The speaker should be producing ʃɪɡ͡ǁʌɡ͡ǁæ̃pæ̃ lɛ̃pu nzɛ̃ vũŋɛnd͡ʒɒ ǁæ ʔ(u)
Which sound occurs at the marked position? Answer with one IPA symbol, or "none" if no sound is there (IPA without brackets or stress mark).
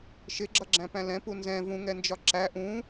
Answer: ũ